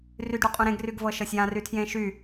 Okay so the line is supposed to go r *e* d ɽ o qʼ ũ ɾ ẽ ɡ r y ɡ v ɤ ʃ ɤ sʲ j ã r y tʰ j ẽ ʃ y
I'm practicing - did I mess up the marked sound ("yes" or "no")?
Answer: yes